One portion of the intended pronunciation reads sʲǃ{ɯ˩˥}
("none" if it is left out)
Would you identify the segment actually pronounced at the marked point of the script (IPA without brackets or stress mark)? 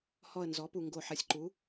u˩˥